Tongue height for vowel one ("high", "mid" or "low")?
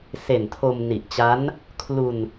mid